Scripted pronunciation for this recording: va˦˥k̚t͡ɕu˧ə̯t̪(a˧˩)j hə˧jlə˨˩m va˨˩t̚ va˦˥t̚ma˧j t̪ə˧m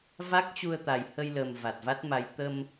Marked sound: incorrect: a˨˩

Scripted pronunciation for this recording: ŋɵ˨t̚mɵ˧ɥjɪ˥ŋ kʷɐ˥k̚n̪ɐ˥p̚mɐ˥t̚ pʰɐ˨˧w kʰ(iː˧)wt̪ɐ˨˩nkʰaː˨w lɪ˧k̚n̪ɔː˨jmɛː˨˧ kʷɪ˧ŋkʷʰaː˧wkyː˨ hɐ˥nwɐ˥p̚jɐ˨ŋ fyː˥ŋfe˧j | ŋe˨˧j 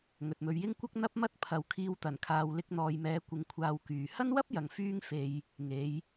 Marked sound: correct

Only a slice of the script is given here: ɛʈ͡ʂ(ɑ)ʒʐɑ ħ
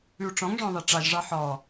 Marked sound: correct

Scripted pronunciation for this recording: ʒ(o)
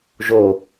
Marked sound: correct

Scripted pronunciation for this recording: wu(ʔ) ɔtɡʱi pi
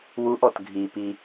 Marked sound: correct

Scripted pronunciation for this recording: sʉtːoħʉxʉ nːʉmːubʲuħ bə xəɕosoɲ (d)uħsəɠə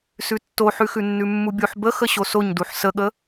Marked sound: correct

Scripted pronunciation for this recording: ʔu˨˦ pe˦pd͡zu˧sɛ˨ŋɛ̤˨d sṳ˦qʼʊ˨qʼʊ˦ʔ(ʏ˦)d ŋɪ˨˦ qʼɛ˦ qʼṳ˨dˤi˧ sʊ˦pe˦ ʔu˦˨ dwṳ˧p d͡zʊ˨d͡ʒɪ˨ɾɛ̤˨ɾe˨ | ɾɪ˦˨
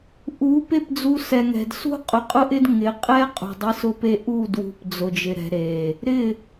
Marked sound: incorrect: ɪ˦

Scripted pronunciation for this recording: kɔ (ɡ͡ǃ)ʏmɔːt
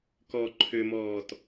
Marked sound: incorrect: ǃʰ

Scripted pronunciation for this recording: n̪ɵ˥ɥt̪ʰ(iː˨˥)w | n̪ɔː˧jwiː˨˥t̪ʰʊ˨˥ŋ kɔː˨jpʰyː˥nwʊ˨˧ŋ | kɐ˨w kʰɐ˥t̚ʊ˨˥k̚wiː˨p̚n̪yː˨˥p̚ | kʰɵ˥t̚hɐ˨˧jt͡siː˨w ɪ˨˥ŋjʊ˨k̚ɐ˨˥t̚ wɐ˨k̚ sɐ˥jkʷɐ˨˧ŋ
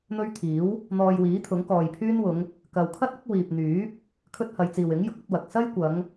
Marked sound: correct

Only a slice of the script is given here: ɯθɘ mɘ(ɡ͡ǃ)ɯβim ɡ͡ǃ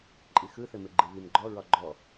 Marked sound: correct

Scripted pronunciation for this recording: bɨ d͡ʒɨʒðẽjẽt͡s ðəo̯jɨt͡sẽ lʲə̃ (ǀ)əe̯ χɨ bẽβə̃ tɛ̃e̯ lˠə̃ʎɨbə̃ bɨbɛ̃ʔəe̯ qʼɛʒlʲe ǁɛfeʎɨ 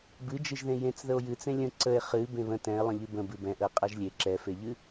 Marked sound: correct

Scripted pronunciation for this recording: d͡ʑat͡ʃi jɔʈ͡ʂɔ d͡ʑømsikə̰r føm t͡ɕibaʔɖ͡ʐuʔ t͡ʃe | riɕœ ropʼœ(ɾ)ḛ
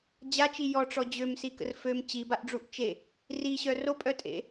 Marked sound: incorrect: tʼ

